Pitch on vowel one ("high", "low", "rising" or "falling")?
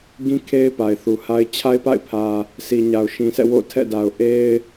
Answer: high